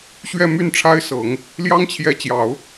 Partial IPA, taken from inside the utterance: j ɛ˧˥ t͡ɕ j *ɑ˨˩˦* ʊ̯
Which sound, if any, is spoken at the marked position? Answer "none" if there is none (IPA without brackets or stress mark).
ɑ˨˩˦